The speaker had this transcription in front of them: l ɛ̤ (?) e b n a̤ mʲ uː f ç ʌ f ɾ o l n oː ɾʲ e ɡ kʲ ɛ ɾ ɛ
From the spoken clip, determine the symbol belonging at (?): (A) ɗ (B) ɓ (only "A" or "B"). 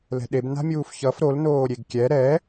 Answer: A